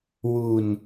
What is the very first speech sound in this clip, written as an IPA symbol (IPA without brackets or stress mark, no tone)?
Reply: w